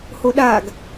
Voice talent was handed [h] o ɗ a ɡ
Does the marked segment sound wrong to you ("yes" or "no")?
no